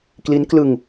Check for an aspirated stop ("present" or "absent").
absent